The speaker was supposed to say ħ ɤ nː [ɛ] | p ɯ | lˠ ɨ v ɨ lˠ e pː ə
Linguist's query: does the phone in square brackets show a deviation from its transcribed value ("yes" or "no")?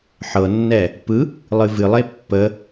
no